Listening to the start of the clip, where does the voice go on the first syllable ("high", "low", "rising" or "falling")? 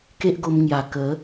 high